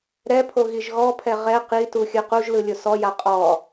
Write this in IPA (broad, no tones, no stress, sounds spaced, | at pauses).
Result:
ɾ ɛ pʰ o ɣ i ʒ ɣ ɔ pʰ ɛ ʁ ɛ q i t u xʲ ɯ q u ʒ l ɯ lʲ o s ɔ j a qʼ ɔ